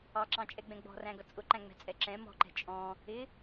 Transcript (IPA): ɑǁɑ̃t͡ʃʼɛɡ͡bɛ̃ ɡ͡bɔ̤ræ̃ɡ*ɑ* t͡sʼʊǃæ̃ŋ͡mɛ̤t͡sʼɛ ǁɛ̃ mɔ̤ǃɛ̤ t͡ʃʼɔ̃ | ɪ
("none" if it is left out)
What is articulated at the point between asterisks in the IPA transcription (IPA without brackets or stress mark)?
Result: ʌ